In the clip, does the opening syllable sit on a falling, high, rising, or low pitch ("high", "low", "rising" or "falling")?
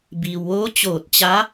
low